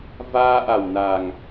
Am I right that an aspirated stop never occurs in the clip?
yes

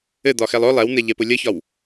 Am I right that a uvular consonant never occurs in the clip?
yes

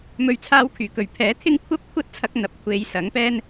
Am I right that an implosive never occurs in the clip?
yes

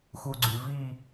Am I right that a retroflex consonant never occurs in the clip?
yes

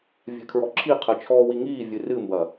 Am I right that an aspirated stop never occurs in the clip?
no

